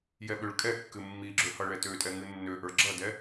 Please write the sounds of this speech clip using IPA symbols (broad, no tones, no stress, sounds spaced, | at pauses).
j ɛ ɓ ø ɭ kʼ ɛ kː ɨ mː i ɡ͡ǁ ø h ʌ ɭ ɛ t ø tʼ ɛ ŋ ɨ nː ø ʔ ə˞ ɡ͡ǁ ʌ d ɛ